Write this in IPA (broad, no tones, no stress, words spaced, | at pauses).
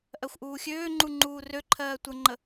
ʔɜxʷʔuːxʲøːŋ͡ǃu ŋ͡ǃuːrøǃʰɜː tʷəŋ͡ǃə